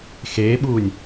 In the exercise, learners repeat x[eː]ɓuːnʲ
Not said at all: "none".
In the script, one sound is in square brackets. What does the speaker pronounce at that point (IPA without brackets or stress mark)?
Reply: eː